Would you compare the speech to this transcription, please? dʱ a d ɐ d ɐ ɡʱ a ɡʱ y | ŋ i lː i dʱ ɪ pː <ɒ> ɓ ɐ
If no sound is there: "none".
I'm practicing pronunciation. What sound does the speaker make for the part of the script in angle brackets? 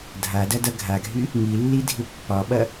ɒ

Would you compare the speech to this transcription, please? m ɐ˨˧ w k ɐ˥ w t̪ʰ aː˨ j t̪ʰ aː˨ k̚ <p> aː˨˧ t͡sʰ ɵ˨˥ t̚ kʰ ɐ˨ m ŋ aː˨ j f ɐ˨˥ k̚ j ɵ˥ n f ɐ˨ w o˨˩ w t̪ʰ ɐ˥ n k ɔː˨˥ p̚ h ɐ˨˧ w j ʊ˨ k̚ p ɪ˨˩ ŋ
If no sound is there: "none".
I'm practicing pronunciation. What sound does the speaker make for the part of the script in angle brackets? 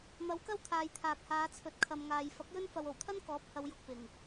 h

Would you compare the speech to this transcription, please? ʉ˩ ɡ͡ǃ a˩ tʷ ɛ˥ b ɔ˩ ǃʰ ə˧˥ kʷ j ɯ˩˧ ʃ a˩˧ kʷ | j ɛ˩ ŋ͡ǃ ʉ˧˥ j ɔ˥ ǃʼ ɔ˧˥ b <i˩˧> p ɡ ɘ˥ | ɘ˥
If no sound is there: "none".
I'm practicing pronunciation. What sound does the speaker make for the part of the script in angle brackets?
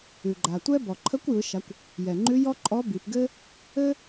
i˩˧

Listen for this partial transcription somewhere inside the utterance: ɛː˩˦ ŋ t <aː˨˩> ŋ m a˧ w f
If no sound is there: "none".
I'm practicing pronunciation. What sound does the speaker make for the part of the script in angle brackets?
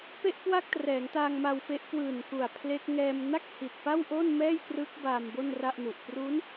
aː˧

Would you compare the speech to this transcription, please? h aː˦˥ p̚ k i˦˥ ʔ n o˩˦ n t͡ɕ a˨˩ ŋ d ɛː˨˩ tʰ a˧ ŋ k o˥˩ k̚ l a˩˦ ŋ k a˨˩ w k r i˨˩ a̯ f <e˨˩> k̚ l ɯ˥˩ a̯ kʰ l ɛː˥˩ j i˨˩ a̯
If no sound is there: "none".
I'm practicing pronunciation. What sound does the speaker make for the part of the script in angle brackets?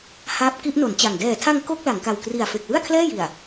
e˨˩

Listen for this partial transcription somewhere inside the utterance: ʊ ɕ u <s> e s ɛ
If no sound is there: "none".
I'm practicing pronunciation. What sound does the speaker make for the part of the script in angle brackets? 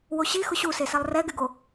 s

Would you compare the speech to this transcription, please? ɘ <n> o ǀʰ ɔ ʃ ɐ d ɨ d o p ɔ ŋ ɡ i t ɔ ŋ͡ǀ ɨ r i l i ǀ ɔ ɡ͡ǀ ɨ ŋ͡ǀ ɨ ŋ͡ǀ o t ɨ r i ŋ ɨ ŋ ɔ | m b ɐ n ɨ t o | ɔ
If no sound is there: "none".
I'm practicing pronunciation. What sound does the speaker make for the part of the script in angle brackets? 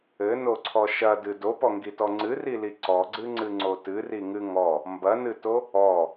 n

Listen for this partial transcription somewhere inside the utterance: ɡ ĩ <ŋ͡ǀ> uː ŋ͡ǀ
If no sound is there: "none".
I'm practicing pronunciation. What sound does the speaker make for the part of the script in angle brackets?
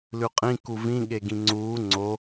ŋ͡ǀ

